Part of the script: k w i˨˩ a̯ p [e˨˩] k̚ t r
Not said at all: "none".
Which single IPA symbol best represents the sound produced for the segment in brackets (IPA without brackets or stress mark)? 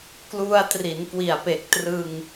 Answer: e˨˩